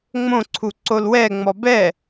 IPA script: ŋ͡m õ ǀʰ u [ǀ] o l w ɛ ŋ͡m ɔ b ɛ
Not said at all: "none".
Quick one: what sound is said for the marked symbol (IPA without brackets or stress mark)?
ǀ